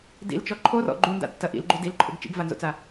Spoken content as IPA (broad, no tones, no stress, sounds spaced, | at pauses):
d ḭ l t͡ʃ ɔ ǃʰ o r ɔ̰ ɡ͡ǃ u n d a̰ tː ɐ ʔ ḭ l ɡ͡ǃ u d i l ǃʰ o̰ ɡ t͡ʃ ḭ ɡ v a n z o̰ t͡s a